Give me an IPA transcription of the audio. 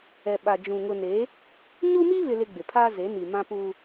ɛ˨ɓa˨d͡ʒũ˨ ŋʊ˨ne˨˦ | ɲu˦mi˦βɪ˨lɪ˨ ɡ͡bɪ˨pʰaː˦ ze˨˦ni˨mã˦ pu˦

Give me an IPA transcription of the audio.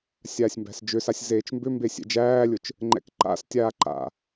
sʲaːsʲmbæ̤sd͡ʒʏsasʲ zeːt͡ʃmbʏmbe sʲɛ̰d͡ʒæːlʲʊt͡ʃ | ŋ͡ǃɛ̰kǃa̰stʲaː ǃa̰

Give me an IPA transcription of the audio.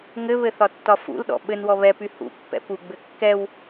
ŋɘβɘ θɒtːɒfṵlɗɔ̰ ɓɘnwɔ βɛpy hṵpːɛ̰ puɡ͡bɘ kːɛw

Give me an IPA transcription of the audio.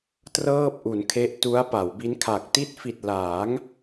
trɤː˥˩p̚ʔu˩˦nkʰe˦˥ʔ tu˦˥a̯pa˩˦wbi˦˥nkʰa˨˩k̚ ti˦˥t̚fi˨˩t̚ laː˩˦ŋ

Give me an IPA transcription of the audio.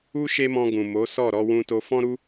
u˦ ʃe˦mɔ̃˧ ɡũ˨mo˨˦sɔ˦˨ ɾɔ˧wũ˧to˧ fɔ̃˦ɾu˦

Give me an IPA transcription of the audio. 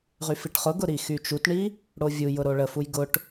ʁyfiʈχʊɡʊ ɾixyt͡ʃutɳi | ɽovʲujʊ ɾoɭəfuj ɡʊʈ

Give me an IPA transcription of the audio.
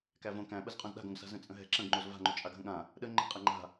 kævõ kæ̃ɓəzqʼõz ɗa̤ɡõɡsa̤ zə̃t͡sʼə̃ɦɛ̤ ǁə̃ɡŋ͡ǃoz va̤ŋ͡ǃo t͡ʃʼaɡɦə̃ɠã | ɗə ŋ͡ǃə̤qʼɛ ŋ͡ǃa̤

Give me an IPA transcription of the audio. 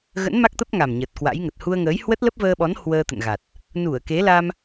ɣə̰˧˥nma˦˥k̚ t̪ə˦˥p̚ŋa˨˩m ɲə˨˩t̚kwa̰˧˥jŋə˨˩t̚ hu˧ə̯ŋəː˨˦j hwə˦˥t̚lə˦˥p̚vəː˧ɓɔ˨˦n hwəː˧t̪ə̰˧˨nɣa˨˩t̚ | nu˧˩ə̯ke˨˦ la˧m

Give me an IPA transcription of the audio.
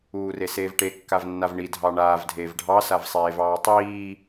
uːreseːvʈe kːavnːavɳi dʱɑɳaːv dʱeːvɖʱɑ savsˤeːvɑːtˤiː

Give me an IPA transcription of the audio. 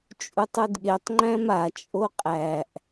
t͡ʃʼutˤudɠetˤ ŋ͡ǃæ̃ma t͡ʃʼoqʼæʔ

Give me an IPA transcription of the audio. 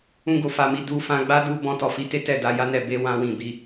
ũ˦ɡo˧fa˧mi˧ du˧ fã˧ɡ͡ba˦du˧ bɔ̃˧tɔ˨fi˧te˦ tɛ˦˨da˨˦ja˦nɛ˦˨ be˧ wã˦wĩ˦˨ bi˨˦

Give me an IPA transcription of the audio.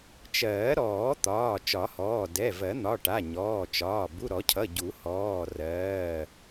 t͡ʃɜː˨˩˦ɾɔː˨˩˦ t̪ɒː˩˧˩ t͡ʃɒ˨˩˦hɔː˩˧˩ dɛ˩˧˩vɜ˨˩˦ n̪ɒ˩˧˩ ʈa˩˧˩ ɲɔː˩˧˩t͡ʃɒː˩˧˩ bu˩˧˩ɾɔ˨˩˦cʰʌ˩˧˩ ɟu˨˩˦hɔː˩˧˩rɜː˩˧˩

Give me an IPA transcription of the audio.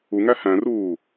uŋæ hæ̃ruː

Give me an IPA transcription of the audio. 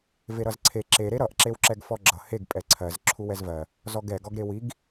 veɾʌzǀʰe ǁe ɾeɾʌʔ ǁewǁɛɡfɔɡ͡ǁʌ heɡ pʼɛǀʰɜz ǁʰuwɛzvɜ | zɔɡɛ ɡɔɡɾewiɡ

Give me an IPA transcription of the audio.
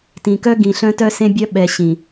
tĩ˨kœ˦ ɡĩ˨ɬœ̃˦ tœ˦sẽ˦bʲœ˦ ɓɛ˨ ɕĩ˨

